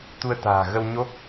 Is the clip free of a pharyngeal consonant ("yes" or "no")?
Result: yes